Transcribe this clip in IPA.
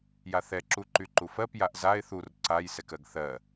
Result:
j a θ ɛ ǁ u ǃ y ǃ u f ɜ p j a ʔ z a ɪ̯ θ u r ǀ a j s ɛ k ɜ ɡ θ ɜ

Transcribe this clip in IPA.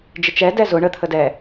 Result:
d͡ʒ ɪ t͡ʃ ɛ d ɛ z ʊ ɳ ə t̪ʰ ə d ɛ

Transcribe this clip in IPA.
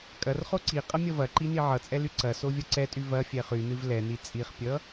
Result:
kʼ ɐ r χ o ǀ i qʼ ɐ mʲ ʌ v ɐ ǃ i n i ʕ ʌ t͡sʼ ɛ l y ǀ ɐ s o vʲ ʌ ǀ ɛ tʼ y v ɐ fʲ ɛ χ y n ɨ v l ɛ n i t͡sʼ i χ pʲ ʌ

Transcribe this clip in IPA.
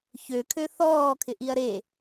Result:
ç ø kʰ ø θ ɔː kʰ ɪ ʔ i ɐ̯ ɾ e

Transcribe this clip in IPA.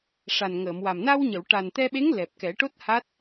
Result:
ʂ a˨˩ n ŋ əː˨˩˨ m w a˨˩ m n a˧ w ɲ ə˨˩˨ w ʈ a˨˩ n t̪ ɛ˧ ɓ e˧˥ ŋ l ɛ˨˩ p̚ k ɛ˨˩˦ ʈ o˦˥ t̚ h a˦˥ t̚

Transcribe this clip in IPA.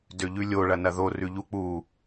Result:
d ø ʎ ʉ lʲ o ɭ ɐ n ɐ ð o r ʉ ʎ u k͡p u

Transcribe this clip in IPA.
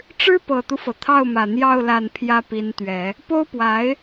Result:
ʈ͡ʂ ɻ̩˥ p ɤ˨˩ t̪ u˦ f ɤ˩ t̪ʰ ɑ˥˩ ʊ̯ m ä˨˩ n̪ j ɑ˥˧ ʊ̯ l a˥˩ n pʰ j ä˥ p i˧˥ n t̪ ɥ ɛ˨˩˦ | p o˥ ʊ̯ p w a˧˥ ɪ̯

